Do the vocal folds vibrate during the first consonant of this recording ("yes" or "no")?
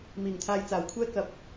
yes